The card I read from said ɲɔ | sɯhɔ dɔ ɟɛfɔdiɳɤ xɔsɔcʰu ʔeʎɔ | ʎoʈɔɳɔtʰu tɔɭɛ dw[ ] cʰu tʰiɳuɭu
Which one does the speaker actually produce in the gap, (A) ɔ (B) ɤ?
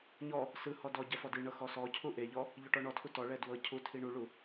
B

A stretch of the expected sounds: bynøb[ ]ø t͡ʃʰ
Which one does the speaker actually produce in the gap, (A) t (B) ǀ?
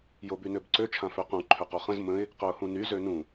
B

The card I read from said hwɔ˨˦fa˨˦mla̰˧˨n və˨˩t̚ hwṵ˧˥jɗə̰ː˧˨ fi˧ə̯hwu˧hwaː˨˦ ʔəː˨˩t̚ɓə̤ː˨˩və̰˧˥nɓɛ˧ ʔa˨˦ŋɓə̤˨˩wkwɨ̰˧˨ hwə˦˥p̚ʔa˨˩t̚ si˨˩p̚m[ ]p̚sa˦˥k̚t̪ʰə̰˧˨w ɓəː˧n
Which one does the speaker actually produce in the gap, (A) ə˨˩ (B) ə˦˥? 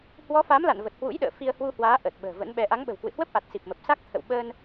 A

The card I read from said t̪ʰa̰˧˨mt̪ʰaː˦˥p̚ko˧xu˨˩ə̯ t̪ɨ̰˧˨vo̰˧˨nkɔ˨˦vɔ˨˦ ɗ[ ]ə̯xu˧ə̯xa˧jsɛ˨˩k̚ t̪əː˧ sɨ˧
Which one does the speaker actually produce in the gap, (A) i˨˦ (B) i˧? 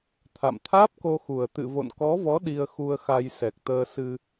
B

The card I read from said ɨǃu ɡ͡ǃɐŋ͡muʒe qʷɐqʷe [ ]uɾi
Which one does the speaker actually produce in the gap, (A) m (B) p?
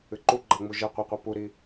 B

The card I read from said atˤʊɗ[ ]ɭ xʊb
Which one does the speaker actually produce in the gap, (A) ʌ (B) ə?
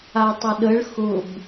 B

